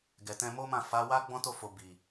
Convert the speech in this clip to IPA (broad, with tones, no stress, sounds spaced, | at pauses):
ɡ ɛ˨ t ɛ̃˧ m o˦ m ã˦˨ f a˨˦ w a˦ ɡ͡b ɔ̃˦ t o˦˨ f o˨ b i˨